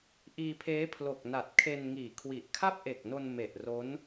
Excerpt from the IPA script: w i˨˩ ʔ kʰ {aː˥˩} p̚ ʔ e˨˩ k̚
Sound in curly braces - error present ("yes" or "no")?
yes